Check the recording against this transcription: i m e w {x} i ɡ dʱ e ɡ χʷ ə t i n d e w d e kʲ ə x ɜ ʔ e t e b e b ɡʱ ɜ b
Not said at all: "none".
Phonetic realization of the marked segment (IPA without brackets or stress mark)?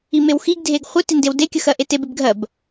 x